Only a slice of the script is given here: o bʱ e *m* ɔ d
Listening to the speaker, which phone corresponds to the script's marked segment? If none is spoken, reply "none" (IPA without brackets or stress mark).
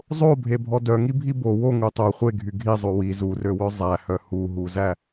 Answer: bʱ